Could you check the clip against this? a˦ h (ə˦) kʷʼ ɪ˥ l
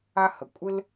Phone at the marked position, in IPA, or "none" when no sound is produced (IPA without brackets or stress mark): ə˩